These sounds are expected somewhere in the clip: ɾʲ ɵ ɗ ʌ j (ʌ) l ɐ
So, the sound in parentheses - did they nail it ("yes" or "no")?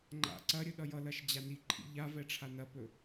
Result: yes